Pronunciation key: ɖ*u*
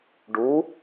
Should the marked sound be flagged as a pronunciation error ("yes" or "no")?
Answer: no